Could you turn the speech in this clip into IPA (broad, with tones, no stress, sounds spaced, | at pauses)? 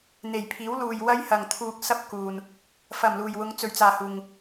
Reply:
n̪ e˨˩ j pʰ iː˨˥ w l uː˨ j w ɐ˥ j h ɐ˨ ŋ t̪ʰ uː˧ k̚ s ɐ˥ p̚ k uː˨ n | f ɐ˨˩ m l uː˨˩ j w ʊ˨˧ ŋ t͡s ɵ˨ ɥ t͡s aː˨ h uː˨ ŋ